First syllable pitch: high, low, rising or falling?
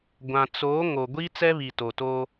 low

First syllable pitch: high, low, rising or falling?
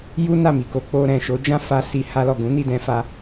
high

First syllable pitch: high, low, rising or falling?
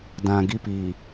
low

